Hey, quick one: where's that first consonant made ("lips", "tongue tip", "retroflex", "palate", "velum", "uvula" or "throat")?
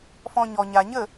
lips